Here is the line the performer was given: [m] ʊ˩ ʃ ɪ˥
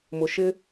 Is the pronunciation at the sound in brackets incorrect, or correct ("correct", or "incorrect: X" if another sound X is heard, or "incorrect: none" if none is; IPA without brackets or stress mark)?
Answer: correct